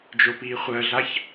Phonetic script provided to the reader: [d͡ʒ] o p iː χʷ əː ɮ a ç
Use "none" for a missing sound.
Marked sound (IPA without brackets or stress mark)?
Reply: d͡ʒ